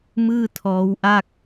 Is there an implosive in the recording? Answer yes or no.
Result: no